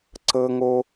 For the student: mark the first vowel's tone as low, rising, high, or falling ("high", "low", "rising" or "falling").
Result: low